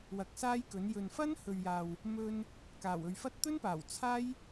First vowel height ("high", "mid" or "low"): low